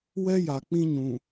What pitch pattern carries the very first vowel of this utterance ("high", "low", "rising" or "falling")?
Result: high